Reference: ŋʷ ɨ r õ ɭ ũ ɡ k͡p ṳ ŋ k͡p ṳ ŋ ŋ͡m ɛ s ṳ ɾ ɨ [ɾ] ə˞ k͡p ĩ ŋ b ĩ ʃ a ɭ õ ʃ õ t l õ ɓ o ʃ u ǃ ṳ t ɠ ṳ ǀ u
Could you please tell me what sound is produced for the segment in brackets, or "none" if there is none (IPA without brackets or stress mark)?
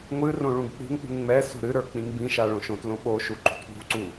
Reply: ɾ